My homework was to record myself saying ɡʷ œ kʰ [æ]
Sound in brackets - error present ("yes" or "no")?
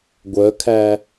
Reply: no